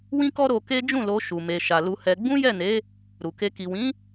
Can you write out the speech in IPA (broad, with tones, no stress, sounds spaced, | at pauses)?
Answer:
w ĩ˦ k ɔ˦ ɾ o˧ k e˦ d͡ʒ ũ˦˨ l o˧ ʃ u˨ m e˨ ʃ a˨ l u˧ h ɛ˧ ɡ͡b ũ˦ j ɛ˦˨ n e˨˦ | ɾ u˨ k e˧ k i˨ w ĩ˨˦